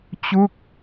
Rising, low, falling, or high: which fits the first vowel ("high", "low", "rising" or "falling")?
falling